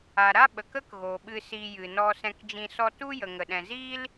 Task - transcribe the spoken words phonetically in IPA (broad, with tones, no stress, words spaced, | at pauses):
a˨ɾa˦ɓə˨k ə˦kɣo˨ ɓɨ˧si˧ jɨ˨nɔ˧ sɛ̃˧kd͡ʒĩ˧ sɔ˧tu˦ jə˨ŋə˨ɗɛ̃˨ziː˦l